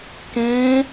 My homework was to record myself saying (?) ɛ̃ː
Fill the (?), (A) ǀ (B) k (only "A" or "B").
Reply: B